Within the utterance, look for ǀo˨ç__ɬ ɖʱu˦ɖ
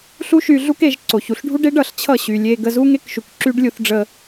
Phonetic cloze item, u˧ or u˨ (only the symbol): u˧